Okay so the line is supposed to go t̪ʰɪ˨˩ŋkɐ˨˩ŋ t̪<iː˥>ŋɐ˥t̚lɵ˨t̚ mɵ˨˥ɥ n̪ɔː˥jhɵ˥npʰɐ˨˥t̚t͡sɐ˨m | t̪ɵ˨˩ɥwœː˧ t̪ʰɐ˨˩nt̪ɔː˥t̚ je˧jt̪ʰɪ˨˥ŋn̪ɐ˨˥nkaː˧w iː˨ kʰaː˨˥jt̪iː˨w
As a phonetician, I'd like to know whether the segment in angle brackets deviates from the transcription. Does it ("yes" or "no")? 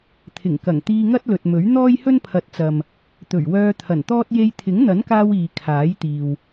yes